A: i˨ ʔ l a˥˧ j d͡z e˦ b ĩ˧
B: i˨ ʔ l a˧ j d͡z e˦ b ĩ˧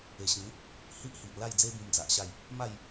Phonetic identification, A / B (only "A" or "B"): A